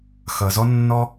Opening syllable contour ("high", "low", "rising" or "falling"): low